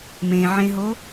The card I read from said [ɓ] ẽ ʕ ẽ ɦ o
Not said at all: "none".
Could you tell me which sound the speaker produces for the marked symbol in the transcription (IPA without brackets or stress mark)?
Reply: m